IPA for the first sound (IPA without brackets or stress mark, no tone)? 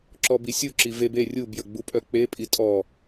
ǁ